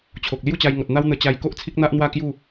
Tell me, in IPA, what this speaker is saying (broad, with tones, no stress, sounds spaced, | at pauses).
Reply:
t͡ɕʰ o˨ k̚ l j u˥˧ t͡ɕ a˧ j ŋ ɔ˨ t̚ n̪ a˦ w n̪ ə˧ t͡ɕ a˧ j k o˦ ʔ t͡sʰ i˦ k̚ n̪ a˦ ʔ n̪ w a˥˧ k j u˥˧